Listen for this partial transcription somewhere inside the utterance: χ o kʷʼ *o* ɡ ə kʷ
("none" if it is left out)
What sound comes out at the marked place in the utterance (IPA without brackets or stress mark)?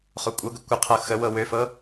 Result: ɤ